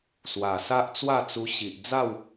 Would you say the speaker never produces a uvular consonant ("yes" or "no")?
yes